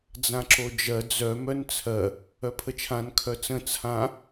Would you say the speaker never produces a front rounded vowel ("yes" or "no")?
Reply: no